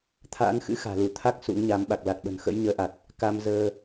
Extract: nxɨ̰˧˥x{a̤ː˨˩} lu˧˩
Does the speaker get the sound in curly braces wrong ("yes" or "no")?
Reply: no